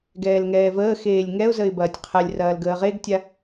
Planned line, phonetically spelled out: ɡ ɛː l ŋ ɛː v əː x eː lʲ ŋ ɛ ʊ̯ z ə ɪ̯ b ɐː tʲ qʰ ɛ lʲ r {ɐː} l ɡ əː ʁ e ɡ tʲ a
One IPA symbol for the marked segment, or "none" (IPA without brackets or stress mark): ɐː